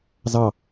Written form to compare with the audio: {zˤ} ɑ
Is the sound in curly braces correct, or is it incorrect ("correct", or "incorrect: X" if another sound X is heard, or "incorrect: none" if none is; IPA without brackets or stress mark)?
incorrect: z